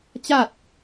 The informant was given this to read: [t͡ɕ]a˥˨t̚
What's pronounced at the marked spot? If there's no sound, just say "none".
t͡ɕ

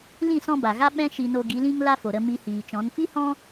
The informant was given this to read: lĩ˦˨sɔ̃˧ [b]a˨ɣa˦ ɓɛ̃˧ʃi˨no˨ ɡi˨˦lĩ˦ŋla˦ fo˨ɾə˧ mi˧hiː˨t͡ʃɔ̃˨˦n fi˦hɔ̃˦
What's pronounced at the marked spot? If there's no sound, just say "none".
b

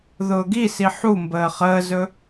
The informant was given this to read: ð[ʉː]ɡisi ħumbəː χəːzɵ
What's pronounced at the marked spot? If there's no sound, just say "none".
ʊː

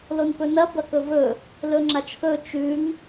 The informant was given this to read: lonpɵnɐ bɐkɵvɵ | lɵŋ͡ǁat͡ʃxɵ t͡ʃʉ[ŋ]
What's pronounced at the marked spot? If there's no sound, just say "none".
ŋ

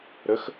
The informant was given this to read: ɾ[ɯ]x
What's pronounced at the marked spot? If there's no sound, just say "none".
ə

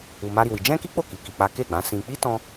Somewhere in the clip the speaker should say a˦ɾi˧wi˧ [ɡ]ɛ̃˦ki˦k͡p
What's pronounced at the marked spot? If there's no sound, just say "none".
d͡ʒ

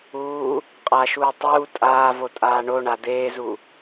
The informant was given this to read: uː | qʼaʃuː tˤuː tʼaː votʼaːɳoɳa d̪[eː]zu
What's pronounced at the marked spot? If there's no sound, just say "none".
eː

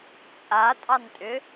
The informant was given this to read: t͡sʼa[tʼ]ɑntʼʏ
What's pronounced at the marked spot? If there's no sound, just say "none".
tʼ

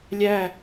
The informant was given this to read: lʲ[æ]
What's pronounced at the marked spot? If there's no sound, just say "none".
æ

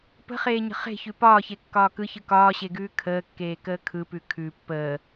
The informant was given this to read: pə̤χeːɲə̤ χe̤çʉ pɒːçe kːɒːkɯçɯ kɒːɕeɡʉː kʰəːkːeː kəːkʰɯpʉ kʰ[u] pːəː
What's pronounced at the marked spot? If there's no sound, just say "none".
ʉ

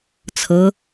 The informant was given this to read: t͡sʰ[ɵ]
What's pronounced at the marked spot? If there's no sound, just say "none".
ɤ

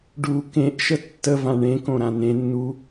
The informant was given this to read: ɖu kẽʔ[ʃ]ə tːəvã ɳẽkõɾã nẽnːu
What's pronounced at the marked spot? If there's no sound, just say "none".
ʃ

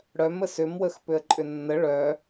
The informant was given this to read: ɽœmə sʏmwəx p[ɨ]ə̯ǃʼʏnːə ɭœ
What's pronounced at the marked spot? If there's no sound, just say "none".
ʏ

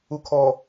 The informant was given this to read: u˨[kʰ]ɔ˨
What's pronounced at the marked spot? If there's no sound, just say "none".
kʰ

